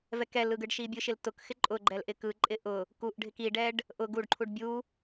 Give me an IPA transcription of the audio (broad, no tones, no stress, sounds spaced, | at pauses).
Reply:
v ɛ k ɛ l ɯ ɡ ɯ ɖ ʃ i bʲ ɯ ʃ ɪ l t ʊ k x ɪ ǃʼ ʊ ɡ͡ǃ ɛ l ʔ ɪ k ɯ ǃʼ ɪ ʔ ʊ | k u ʔ ɖʱ ɪ k i ɖ ɛ ɖ | ʔ ʊ ɡ u ɖ ǃʰ u ɖ bʲ u